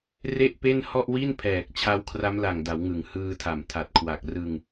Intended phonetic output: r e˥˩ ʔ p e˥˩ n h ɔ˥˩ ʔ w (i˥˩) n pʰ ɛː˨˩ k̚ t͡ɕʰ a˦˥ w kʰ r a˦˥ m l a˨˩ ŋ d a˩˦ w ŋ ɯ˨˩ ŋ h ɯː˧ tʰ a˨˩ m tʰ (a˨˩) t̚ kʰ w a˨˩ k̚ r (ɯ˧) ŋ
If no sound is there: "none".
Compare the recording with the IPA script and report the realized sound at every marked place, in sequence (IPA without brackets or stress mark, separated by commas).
i˥˩, a˨˩, ɯ˧